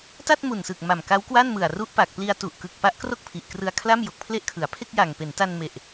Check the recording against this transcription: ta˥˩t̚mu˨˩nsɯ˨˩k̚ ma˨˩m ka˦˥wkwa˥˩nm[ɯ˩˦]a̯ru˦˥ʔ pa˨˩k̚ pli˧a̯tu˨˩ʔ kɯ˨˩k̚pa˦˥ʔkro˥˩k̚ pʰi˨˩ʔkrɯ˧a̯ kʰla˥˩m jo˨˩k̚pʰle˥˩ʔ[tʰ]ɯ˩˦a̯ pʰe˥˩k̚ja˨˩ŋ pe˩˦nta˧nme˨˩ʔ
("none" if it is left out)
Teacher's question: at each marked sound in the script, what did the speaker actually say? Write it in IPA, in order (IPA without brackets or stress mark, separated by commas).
ɯ˨˩, kʰ